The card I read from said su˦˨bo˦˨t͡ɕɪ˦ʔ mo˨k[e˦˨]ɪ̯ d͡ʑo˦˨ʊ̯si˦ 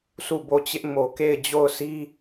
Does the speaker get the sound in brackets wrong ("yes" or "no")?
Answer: no